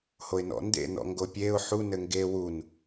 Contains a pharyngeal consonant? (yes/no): yes